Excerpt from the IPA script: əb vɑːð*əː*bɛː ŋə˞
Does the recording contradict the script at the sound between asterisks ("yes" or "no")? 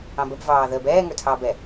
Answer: no